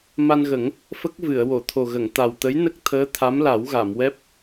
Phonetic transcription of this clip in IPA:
m a˧ n ɣ ə˨˩˦ ŋ | f ə˦˥ k̚ v ɨ˨˩˨ ə̯ w o˨˩˨ t̪ʰ o˨˩ ɣ ə˨˩˨ ŋ t̪ a˨˩ w t̪ ə˧˥ j n ə˦˥ k̚ t̪ʰ əː˧˥ t̪ʰ a˧˥ m l a˨˩˦ w ɣ a˨˩˨ m w ɛ˦˥ p̚

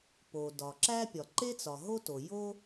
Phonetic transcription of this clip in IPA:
p o˩ d ɒ˩ ǁ æ˥ pʲ ɒ˩ ǃ e˥ t͡s ɒ˩ ɦ o˥ t o˩ j o˥

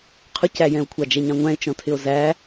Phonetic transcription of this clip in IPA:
qʰ ʊ c æ j ɛ̃ o̯ kʷʰ ɑ d͡ʒ ɛ ɲ ɑ̃ ŋʷ æ̃ e̯ t͡ʃ ɔ̃ tʰ ɪ o̯ z æ

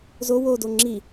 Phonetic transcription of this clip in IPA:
z o w o d o ŋ͡ǁ i

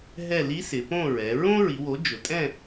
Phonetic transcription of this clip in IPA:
ɦ ɛ˥˨ l i˧˥ s ɪ˩˧ p õ˥˨ ɹ ɛ˩˧ ɹ õ˥ ɹ i˩˧ w o˩˥ d͡ʒ ʊ˩˧ tʼ ɛ̃˥˨

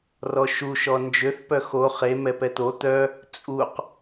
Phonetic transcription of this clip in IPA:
r ɔ ʃ u ʃ ɔ n d͡ʒ ø θ p œ x o χ e m ɛ p ɛ t̪ o t̪ œ | t͡sʼ u q

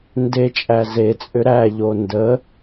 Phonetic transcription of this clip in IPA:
n d e t͡ʃʼ æ z e t͡sʼ ʏ ɾ æ ʎ o n d ə

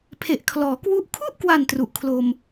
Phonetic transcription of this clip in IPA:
pʰ e˨˩ ʔ kʰ l ɔː˩˦ k w u˦˥ ʔ kʰ u˥˩ ʔ k w a˨˩ n t r u˨˩ ʔ kʰ l o˧ m

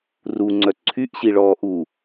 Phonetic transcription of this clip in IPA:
r u ŋ͡ǀ œ ǀʰ y ʔ ɕ i ɭ ɔː ʔ u

